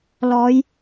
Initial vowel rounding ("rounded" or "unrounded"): rounded